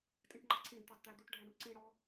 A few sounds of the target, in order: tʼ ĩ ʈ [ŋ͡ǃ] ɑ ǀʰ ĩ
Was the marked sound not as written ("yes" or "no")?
no